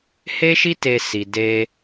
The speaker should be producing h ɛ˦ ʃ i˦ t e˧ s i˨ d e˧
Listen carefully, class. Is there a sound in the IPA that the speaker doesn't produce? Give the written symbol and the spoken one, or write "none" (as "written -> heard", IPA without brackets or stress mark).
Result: ɛ˦ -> e˦